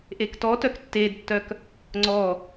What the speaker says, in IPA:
ʔektɔtœk tːedtːœk | ŋ͡ǀɔ

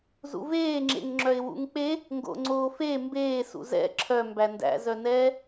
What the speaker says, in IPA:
zṵveːŋ͡ǁḛŋŋ͡ǁœɪ̯ wṵŋk͡pe | ŋɡo̰ŋ͡ǀoːfe mbeːsṵ zɛ̰ ǁʰœ mbændæ̰zœnɛː

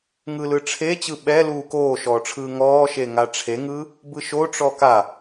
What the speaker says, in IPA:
ŋɯlɯʈ͡ʂʰe t͡ɕɯɓɛluː koːʃɔːʈ͡ʂʰɯː ŋɔːʃe ŋaʈ͡ʂʰeŋɯː | bɯʃoʈ͡ʂɔ ka

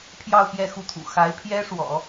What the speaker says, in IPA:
pʰjɑ˥˧ʊ̯ pjɛ˥˧xu˥˩t̪ʰṵ˨˩ xa˧˥ɪ̯pʰjɛ˥ʂwɔ̰˨˩˦

